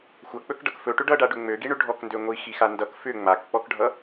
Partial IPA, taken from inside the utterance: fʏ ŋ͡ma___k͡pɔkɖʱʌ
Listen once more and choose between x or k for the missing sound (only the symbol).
k